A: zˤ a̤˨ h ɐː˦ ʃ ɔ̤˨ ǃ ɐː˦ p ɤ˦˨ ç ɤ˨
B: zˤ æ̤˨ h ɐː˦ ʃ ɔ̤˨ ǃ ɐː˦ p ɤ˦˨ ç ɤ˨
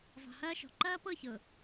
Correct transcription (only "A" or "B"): A